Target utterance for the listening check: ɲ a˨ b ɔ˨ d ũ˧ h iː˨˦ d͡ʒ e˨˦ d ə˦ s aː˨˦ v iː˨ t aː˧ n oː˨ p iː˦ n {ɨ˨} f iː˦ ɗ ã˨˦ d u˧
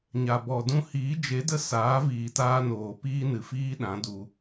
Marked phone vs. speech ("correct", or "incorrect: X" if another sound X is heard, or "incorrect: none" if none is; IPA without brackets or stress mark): correct